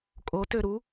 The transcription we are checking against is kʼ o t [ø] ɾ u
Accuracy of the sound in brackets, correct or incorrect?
correct